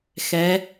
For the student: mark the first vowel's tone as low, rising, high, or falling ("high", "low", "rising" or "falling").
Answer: rising